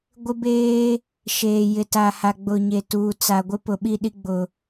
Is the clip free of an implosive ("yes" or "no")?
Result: no